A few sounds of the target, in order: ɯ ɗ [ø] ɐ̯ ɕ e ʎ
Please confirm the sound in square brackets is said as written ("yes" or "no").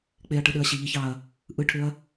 yes